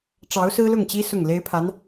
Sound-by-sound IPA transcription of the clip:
ʈ͡ʂ ɑ˧˥ ʊ̯ s ɹ̩˥ l ʊ˥˩ ŋ t͡ɕ i˥ s ʊ˥˩ ŋ l e˥ ɪ̯ pʰ a˧˥ n

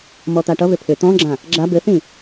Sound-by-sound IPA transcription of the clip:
m ɔ t̪ a ʈ ʌ β ʏ pʰ ʏ t̪ ɔ̃ ɡ͡ǁ ã | ɡ͡ǁ a b ɘ θ ĩ

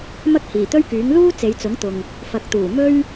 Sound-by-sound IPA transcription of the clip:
m ɐ˥ k̚ h iː˨˩ t̪ ɵ˥ ɥ k yː˨˥ ŋ l uː˥ t͡s e˨˧ j t͡s ʊ˨˥ ŋ t̪ ʊ˨ ŋ | f ɐ˨ k̚ t̪ uː˨˩ m ɵ˥ ɥ

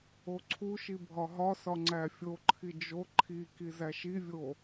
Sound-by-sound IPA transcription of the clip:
o ǀʰ u ʃ i bʱ ɒ ɦ ɒ s ɒ ŋ͡ǀ æ fʲ o ǃʰ i d͡ʒ o ǃʰ i k i z æ ʃ i vʲ o

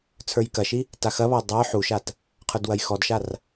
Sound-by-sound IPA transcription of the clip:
t͡sʰ ə˞ j k ɐ ʃ i | t a x ɐ β ɒ j dˤ ə˞ ħ u ʃ a t | qʰ ə˞ d w ɐ j x ɔ d ʃ a r

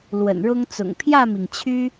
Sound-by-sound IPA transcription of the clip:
l w ə̰˨˩ n ɻ ʊ˦ ŋ t͡s ʊ̰˨˩ ŋ pʰ j ä˥˨ m i˩ ŋ t͡ɕʰ y˦

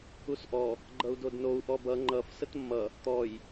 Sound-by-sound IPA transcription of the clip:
u s ʔ ɔ | ɡ͡ǃ ʌ u̯ d o d n o u̯ ʔ ɔ b ʌ ŋ͡ǃ ʌ f s ə t mː ʌ | t̪ ɔ j

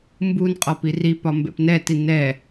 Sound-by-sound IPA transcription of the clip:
m b u n qʼ ɔ p i r i p ɒ m b ɛ̰ p n ɛ t i n ɛ

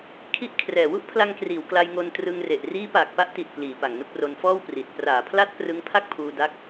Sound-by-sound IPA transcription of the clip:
kʰ i˦˥ ʔ kʰ r ɛː˨˩ w u˥˩ ʔ pʰ l a˧ ŋ k r iː˩˦ w k l a˧ j ŋ o˧ n t r ɯ˧ ŋ r e˨˩ ʔ r iː˦˥ p aː˨˩ k̚ p a˦˥ ʔ t i˨˩ t̚ p l iː˩˦ p a˨˩ ŋ n u˥˩ k̚ r o˧ n f ɔː˥˩ w p r i˨˩ t̚ p r aː˩˦ pʰ l a˦˥ t̚ p r ɯ˦˥ ŋ pʰ a˥˩ k̚ pʰ uː˧ d a˦˥ k̚

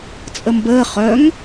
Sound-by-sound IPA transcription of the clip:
t͡sʼ ə m b əː χ œ ŋ

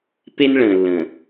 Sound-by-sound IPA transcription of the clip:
p e˦ n ɭ ə̃ː˨ lː ə̃ː˨

